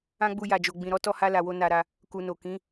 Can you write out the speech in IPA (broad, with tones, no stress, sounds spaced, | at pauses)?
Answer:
ã˦ ɡ͡b u˧ j a˨ d͡ʒ o˨ ɡ͡b ĩ˨ ɾ ɔ˨˦ t ɔ˧ h a˧ l a˨ w o˧ n a˧ ɾ a˧ | k u˨ n o˨ k ĩ˨˦